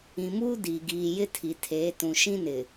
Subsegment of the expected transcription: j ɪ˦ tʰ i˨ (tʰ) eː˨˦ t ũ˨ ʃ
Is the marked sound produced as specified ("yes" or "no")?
yes